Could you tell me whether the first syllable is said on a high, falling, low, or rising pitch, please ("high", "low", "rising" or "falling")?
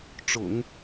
low